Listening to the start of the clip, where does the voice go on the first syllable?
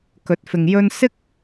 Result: rising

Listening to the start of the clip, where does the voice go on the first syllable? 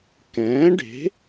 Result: rising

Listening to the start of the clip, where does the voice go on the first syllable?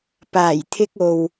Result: low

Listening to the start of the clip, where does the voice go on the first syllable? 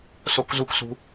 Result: high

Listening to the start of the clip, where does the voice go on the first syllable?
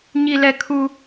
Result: low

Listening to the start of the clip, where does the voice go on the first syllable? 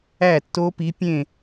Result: falling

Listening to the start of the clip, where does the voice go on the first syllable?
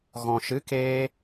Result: low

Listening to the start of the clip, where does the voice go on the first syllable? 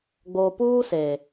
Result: low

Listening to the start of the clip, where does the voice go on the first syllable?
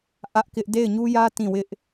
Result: high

